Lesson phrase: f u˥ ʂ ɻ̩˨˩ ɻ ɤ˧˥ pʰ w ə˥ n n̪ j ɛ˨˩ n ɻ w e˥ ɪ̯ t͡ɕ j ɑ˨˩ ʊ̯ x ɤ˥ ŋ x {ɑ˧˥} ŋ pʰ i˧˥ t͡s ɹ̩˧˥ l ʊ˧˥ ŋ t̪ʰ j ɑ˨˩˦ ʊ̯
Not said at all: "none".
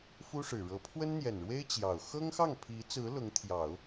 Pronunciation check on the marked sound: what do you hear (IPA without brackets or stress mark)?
ɑ˥˩